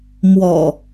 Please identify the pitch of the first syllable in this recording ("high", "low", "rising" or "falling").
low